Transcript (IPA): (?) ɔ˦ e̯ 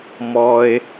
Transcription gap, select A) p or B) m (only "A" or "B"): B